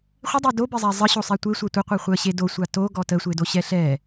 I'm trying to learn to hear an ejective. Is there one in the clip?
no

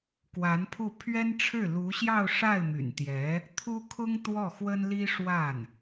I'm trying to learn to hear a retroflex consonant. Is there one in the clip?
yes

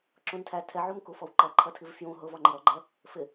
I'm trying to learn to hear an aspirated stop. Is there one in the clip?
yes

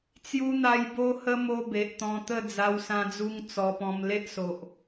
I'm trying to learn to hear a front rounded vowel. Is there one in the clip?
no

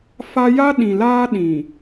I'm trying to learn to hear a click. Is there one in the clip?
no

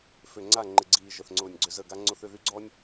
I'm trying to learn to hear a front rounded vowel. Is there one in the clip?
yes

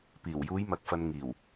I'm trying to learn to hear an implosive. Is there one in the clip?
no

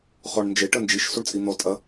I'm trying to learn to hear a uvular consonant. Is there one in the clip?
yes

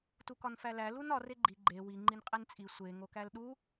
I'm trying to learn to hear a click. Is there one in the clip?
yes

